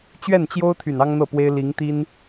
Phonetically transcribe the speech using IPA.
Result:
t͡ɕɥɛ˥˩nt͡ɕjo˥ʊ̯ t̪ʰy˨˩nɑ˥ŋn̪ɤ˥˩pwe˥ɪ̯ li˧˥ŋt̪i˥n

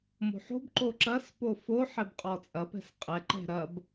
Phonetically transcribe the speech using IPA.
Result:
mo̤ħo̤b ǃoǁɐs pofo ħɛbqʼɔt͡sʼɐ pɛ̤sqʼɛ ǃɛ̤ɾɐb

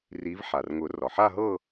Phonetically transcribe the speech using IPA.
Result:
ri˨˦vħa˩rŋʊ˨˩˦ rɒ˩ħa˥˧ɦɤ˥˧

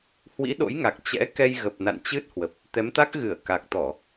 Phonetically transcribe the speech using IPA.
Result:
hwḭ˧˥ɗo̰˧˥jŋa˨˩k̚ t͡ɕɛ̰˧˥ kɛ˧jɣə˨˩p̚na̰˧˨n t͡ɕɨ˦˥t̚hwə˨˩p̚ | t̪ɛ˨˦mt̪a˦˥k̚ɣɨ˧˩ə̯ ka˨˩k̚t̪ɔ˧˩˨

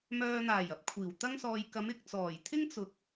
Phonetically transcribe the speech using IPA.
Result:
mœː˨n̪aː˨˩j ɐ˧p̚kʷʰiː˨˩wt̪ɐ˥ŋsɔː˧j kɐ˨˧mɪ˨k̚ t͡sɔː˨˩jt̪ʰɪ˥ŋ t͡sʊ˨˥k̚

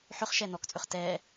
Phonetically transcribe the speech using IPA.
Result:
ħʏχʃɛ nɔkt͡sʼʏχ tɛ

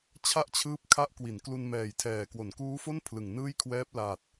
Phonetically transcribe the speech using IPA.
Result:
t͡ɕʰa˥˩ʔt͡ɕʰɯː˦˥p̚kʰa˦˥ʔ kwi˩˦nklu˧nmɛː˨˩jtʰɛː˨˩ kwo˩˦nkuː˦˥fo˥˩n pʰlɯ˨˩ŋ nɯː˥˩jkʰwɛː˦˥p̚laː˨˩t̚

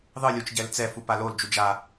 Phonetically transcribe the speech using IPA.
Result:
ðˤɯlʲut͡ʃ ɟɛlt͡sɛfu palold͡ʒu d͡ʒa

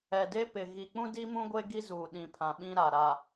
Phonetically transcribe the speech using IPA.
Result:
ɛ˨de˦pɪ˨ ɣi˨k͡pũ˦di˦mũ˦ ɡʷe˦ ɡi˦zuː˨ ɗĩ˨pʰã˨ ɓĩ˦ɾa˨ɾa˨

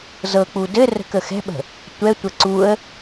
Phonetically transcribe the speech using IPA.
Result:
zɤk͡pu dɘ rə̤kəxɛ̤ɓə̤ | tʷɛtʷə ǀuə̯

